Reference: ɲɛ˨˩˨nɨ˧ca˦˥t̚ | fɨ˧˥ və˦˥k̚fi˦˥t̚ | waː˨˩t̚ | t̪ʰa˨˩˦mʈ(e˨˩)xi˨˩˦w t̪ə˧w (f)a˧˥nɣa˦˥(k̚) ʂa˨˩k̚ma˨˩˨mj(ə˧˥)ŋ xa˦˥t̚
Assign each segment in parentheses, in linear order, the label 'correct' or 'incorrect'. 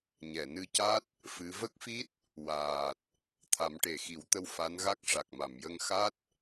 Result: correct, correct, correct, incorrect: ə˧

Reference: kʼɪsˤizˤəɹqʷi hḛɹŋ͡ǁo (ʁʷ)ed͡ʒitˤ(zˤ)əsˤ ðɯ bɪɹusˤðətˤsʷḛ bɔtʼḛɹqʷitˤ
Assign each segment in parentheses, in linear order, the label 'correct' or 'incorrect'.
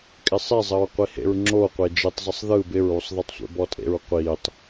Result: incorrect: qʷ, correct

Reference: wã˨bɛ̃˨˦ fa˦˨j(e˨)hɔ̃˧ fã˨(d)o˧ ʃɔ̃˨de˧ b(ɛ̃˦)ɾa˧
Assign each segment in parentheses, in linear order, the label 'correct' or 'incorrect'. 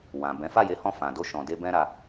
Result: incorrect: e˨˦, correct, correct

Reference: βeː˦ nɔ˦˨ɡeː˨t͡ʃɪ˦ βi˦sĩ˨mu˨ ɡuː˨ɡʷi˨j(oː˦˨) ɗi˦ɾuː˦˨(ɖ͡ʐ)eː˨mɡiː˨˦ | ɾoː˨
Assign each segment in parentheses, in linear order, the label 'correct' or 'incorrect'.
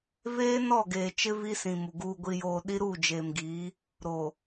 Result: incorrect: oː˨, incorrect: d͡ʒ

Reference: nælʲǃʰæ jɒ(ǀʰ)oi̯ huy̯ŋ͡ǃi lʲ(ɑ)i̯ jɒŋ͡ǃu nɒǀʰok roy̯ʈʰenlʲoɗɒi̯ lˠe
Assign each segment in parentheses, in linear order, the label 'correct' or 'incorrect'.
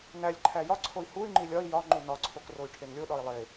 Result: correct, incorrect: ɒ

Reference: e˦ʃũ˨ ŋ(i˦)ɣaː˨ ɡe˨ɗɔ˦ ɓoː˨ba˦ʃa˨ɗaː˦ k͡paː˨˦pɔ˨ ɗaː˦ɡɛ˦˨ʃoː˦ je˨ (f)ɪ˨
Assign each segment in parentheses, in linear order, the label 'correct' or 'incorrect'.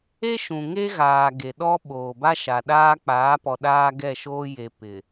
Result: incorrect: e˦, incorrect: p

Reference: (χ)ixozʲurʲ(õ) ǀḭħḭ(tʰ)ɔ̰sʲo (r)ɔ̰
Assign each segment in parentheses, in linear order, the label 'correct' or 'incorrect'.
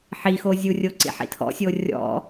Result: incorrect: ħ, incorrect: o, correct, incorrect: rʲ

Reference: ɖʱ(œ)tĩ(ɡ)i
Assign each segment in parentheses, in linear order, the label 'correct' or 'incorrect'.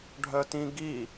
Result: correct, correct

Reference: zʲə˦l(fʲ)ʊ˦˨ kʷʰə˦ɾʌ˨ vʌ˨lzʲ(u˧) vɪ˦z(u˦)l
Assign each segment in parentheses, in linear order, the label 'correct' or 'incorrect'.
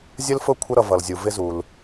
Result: incorrect: f, incorrect: u˨, incorrect: u˨

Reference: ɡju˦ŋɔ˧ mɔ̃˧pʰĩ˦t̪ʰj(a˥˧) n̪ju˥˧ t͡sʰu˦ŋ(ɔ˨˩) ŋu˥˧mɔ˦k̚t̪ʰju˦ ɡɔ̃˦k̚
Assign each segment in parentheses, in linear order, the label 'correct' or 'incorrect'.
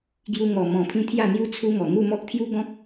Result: correct, correct

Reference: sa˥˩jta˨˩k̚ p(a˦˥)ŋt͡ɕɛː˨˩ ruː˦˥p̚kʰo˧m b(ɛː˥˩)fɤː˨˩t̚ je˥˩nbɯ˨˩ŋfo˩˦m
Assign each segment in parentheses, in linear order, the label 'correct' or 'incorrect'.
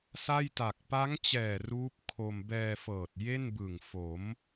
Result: correct, incorrect: ɛː˧

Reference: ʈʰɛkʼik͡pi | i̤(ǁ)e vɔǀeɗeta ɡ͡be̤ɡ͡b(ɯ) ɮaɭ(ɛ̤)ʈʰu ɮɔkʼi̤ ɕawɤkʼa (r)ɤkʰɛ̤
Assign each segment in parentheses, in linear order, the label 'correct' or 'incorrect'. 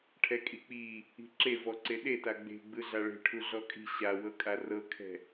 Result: correct, correct, incorrect: e̤, correct

